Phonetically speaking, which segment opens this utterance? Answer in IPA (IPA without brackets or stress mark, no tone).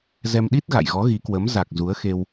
z